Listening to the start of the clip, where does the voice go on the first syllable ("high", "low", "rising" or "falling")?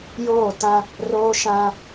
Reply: falling